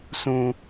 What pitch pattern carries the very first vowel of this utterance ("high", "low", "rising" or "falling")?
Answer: high